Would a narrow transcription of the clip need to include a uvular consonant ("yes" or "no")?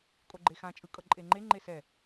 no